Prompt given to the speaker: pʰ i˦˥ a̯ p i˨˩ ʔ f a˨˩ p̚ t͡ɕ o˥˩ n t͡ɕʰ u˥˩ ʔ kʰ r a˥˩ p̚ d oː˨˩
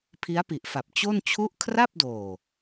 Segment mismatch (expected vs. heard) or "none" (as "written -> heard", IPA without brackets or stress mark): none